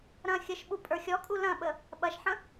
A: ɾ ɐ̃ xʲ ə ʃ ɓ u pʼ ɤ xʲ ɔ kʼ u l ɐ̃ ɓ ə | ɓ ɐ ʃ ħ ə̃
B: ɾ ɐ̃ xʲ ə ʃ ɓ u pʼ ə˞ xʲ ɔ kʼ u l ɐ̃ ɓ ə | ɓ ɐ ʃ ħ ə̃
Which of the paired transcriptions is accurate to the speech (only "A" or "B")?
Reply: B